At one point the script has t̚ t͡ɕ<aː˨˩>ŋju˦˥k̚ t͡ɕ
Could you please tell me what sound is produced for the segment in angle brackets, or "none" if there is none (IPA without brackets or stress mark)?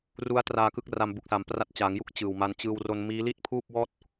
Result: aː˩˦